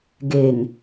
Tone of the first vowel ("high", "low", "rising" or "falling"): low